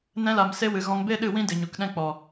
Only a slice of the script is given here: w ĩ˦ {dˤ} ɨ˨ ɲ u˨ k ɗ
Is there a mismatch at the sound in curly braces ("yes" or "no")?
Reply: yes